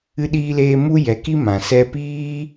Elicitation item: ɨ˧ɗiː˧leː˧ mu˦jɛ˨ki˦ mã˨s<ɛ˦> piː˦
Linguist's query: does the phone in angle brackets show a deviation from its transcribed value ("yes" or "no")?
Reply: no